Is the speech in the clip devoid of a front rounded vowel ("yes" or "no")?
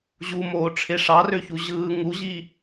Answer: no